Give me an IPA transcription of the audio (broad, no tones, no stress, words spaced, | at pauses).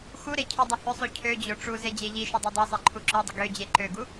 xuɾe cʰydˤʏhʏsˤu cʰød͡ʑo ʈ͡ʂu zed͡ʑeʎiʃʏ dˤodˤœsˤe ǃʰuǁœdˤə ɡød͡ʑe ǃøɡu